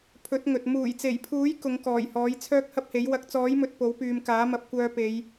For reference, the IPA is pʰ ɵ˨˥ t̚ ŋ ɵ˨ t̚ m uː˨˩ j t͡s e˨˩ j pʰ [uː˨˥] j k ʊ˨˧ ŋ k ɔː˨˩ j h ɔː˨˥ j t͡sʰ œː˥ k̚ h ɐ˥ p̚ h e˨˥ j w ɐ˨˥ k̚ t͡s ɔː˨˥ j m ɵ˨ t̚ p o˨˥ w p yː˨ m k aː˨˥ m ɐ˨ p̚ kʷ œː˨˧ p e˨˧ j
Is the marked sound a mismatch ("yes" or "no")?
no